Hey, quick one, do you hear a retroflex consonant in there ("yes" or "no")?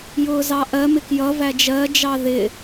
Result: no